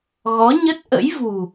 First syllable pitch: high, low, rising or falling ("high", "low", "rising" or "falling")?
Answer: rising